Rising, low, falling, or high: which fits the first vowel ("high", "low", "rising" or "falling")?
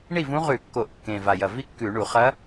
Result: falling